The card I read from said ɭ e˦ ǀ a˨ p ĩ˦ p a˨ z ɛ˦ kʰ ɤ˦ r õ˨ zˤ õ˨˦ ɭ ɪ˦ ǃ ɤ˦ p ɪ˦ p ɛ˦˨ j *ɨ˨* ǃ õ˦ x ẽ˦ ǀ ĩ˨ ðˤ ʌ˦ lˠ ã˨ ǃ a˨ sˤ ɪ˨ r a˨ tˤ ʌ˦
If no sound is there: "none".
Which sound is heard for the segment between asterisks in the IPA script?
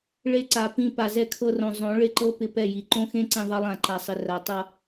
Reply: i˨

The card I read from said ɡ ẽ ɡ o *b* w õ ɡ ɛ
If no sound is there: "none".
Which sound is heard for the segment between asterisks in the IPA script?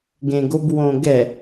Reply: b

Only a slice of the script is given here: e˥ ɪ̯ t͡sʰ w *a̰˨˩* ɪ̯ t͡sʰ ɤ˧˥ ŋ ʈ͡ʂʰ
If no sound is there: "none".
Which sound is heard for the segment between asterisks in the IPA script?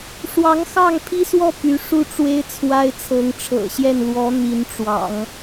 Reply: a˥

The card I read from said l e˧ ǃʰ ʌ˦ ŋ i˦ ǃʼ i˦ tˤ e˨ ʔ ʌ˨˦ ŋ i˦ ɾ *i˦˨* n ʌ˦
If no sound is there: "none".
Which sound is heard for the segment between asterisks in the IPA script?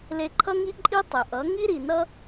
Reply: i˨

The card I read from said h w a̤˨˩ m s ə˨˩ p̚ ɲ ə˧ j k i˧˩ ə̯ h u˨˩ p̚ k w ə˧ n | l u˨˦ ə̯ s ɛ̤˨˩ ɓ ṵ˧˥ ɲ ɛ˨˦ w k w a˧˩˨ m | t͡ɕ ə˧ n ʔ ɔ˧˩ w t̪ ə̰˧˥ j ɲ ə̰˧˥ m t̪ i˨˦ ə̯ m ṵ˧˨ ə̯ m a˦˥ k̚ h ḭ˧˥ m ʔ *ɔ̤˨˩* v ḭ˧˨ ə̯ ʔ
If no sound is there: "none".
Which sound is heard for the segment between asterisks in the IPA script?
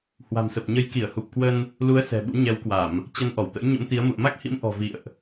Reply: ɔ̤˨˩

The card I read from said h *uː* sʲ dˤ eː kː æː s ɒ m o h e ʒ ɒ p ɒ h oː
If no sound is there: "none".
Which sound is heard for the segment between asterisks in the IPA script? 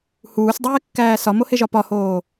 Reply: uː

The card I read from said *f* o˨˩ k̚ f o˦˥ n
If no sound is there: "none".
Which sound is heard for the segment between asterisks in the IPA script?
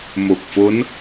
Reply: m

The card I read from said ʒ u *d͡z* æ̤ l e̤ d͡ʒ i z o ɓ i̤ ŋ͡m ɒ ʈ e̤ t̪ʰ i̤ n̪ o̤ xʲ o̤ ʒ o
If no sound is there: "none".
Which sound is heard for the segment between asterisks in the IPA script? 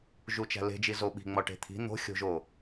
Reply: t͡ʃ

